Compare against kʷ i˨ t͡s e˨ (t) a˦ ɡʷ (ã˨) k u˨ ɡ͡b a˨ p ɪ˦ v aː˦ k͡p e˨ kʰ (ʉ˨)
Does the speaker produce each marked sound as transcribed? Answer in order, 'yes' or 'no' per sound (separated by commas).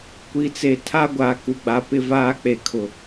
no, no, no